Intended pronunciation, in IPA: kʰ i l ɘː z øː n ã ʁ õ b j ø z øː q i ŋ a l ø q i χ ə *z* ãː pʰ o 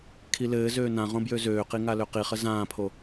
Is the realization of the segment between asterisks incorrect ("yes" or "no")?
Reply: no